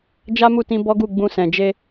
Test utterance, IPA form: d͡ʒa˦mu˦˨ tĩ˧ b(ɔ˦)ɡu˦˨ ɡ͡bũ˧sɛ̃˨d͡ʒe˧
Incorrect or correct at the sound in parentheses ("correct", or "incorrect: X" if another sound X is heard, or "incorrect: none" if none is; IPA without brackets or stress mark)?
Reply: correct